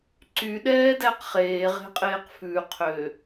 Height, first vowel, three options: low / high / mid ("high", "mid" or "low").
high